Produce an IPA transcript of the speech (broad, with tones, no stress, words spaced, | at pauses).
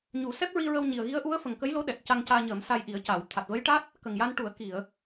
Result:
ɲu˨˩˦sɛ˦˥p̚ɹi˧ɹə˧w ɲi˨˩ə̯ɣi˧˥ə̯ʔu˧˥ə̯ fə˨˩ŋkə˧˥jlo˧˥ɗɛ˨˩t̚ ca˧ŋcaː˧ɲəː˨˩˦m sa˧j ʔi˨˩˦ə̯ca˨˩˨w t̪ʰa˨˩t̚və˧˥jʈa˦˥t̚ | kə˨˩ŋja˧nʈu˨˩˦ə̯ ki˨˩˨ə̯